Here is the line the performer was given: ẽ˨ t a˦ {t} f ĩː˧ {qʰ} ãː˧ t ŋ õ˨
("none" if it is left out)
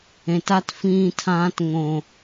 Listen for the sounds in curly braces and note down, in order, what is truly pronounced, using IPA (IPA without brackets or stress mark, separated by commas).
t, tʰ